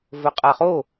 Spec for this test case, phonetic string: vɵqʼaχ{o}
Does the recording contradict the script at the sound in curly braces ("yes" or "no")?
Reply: no